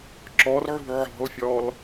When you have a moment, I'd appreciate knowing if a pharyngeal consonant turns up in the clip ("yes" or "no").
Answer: yes